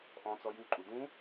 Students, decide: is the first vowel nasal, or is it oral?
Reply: nasal